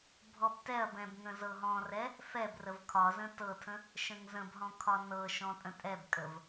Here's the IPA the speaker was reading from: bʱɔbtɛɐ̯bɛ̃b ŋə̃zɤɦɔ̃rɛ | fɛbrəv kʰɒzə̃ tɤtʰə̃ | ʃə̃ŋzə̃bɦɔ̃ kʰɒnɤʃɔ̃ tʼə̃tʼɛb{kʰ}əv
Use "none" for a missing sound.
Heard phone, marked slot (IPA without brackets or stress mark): kʼ